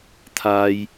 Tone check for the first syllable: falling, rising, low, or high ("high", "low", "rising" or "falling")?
high